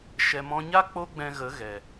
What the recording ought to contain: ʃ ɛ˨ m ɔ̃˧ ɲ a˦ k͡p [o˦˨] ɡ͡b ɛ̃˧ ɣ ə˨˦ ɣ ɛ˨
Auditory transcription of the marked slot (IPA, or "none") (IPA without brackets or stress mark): o˦